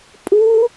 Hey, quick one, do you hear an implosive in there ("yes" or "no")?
no